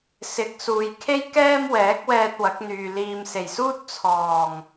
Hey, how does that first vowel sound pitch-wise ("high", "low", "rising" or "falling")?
rising